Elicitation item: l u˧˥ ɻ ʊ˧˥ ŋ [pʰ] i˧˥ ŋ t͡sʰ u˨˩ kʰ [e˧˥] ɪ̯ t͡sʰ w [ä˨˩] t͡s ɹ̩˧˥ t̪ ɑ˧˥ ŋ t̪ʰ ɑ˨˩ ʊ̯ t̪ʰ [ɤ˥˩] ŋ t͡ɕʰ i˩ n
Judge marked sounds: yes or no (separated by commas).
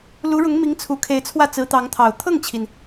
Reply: no, yes, no, yes